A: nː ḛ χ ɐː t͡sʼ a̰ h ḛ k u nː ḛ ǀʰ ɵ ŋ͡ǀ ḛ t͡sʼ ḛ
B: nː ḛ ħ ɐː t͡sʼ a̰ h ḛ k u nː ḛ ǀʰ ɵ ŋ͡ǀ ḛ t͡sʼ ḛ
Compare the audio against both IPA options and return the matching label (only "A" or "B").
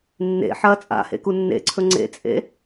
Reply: B